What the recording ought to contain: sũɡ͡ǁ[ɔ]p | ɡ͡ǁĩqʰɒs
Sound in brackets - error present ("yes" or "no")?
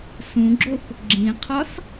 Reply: yes